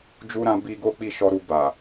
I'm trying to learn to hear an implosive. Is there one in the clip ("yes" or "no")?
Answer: no